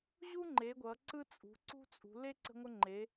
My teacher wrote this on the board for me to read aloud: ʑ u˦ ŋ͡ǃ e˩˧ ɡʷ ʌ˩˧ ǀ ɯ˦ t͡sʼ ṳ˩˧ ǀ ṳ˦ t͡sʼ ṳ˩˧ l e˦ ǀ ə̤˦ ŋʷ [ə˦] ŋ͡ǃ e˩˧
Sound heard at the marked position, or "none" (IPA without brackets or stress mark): ə˦